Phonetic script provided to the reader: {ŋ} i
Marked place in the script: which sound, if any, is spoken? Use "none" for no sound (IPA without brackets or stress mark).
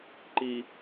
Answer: ǃ